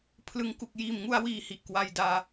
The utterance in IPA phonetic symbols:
pʰlɯ˦˥ŋ ku˨˩k̚jiː˨˩mŋu˧a̯wiː˨˩ hi˨˩ʔkwa˧jdaː˧

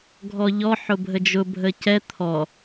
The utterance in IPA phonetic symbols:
ɡʱɔʎɔ ħʊbʱəd͡ʒʊ bʱəcɛ t̪ʰɔ

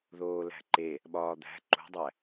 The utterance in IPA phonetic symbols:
ðoːlæ̤ǃe | ɓɒːd̪æ̤ ǃṳdˤæ

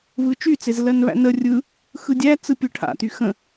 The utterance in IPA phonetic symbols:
βɯt͡ʃyt͡sez lɜnβæ̰nə rʲɯ | xɯdʲæ t͡sɯpʲɯʈʰa̰ty xə̃

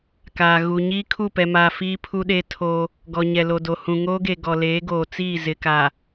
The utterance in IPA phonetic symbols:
kaː˨ ɣu˨ɲiː˦ kʰu˦˨pɛ˨maː˨ fiː˦pʰu˦ɗe˦ tʰo˦ | ɡɔ˨ɲɛ˨lo˨do˨ hũ˨ŋoː˦ɡe˨ ɡɔ˨leː˨˦ ɡoː˨t͡siː˦˨ zɪ˨ka˨

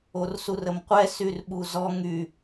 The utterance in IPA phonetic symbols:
orsurəmqʷɛ syrɓuzɔ ŋy

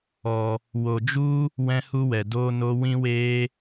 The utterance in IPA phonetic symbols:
ɔ˨ | wo˨d͡ʒu˦ | wɛ̃˦hu˦wɛ˨ doː˦ no˦ wĩ˦weː˦

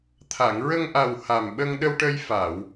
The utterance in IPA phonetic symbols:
t̪ʰa˨˩˨ŋɹə˧ŋ ʔa˨˩w ha˨˩mɓə˧ŋɗə˧wʈə˧j fa˨˩˨w

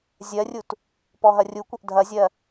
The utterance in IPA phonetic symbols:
zʲɜrʲut | pɔɦɐrʲukʷɐʔ dʱɐzʲɜ

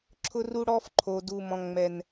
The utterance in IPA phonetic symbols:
ǁʰʊ˦ru˦ɽɔ˦f ǃʰo˨ du˨mɔ̃˨ ŋ͡mɛ˨n

